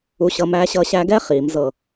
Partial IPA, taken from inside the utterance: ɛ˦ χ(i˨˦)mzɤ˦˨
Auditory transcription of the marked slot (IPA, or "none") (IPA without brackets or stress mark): i˨˦